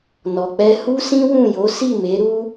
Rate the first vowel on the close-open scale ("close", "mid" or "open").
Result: mid